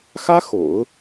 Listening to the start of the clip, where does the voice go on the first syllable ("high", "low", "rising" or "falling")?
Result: high